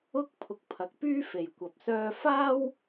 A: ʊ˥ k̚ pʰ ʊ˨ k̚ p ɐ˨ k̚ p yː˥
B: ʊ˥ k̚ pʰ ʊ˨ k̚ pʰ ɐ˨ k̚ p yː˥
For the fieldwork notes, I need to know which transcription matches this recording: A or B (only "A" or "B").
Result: B